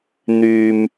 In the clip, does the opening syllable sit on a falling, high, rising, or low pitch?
low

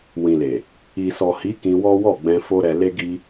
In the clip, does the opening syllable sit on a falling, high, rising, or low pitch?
low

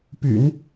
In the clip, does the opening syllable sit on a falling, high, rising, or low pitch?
low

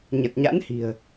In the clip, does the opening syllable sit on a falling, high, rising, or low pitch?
low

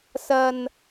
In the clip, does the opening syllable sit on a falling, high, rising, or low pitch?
low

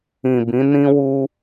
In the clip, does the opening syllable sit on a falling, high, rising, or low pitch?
low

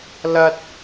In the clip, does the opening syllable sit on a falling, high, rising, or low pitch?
high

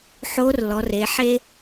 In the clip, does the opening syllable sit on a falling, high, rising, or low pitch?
rising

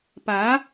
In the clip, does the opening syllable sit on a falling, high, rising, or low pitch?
rising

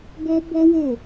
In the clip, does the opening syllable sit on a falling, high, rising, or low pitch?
high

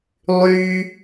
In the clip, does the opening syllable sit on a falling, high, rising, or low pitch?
high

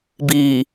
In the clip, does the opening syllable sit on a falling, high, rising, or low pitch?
low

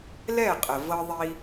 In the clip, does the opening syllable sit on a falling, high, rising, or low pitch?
falling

